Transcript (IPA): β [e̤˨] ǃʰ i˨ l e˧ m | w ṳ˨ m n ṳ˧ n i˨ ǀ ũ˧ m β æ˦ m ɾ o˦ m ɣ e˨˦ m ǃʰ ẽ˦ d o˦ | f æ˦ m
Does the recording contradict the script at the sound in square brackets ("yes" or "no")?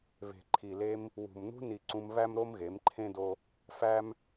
no